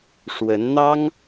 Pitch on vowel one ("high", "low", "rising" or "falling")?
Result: rising